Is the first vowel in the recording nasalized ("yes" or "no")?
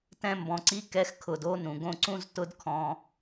yes